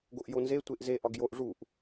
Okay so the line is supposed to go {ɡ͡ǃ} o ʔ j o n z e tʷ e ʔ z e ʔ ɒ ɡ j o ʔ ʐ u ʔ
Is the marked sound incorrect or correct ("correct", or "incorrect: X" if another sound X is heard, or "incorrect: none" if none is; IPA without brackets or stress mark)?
incorrect: ɡ